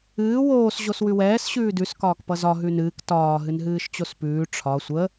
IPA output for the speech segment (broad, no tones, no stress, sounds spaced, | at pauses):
ɨː w oː s ʑ o s w ʉ w ɛː s ɕ ʉː d ʉ s k ɒː k p ʌ z ɒ ɦ ʉ n ɨː k t ɒː ɦ ɨ n ɦ ɨː ʃ t͡ɕ o s p ʉː ʈ͡ʂʰ ɒ sʷ ə